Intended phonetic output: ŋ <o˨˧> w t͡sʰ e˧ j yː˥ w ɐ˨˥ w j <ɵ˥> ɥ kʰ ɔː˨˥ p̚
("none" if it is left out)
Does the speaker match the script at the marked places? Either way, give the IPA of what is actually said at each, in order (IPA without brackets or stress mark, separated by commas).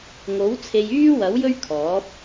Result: o˨˥, ɵ˥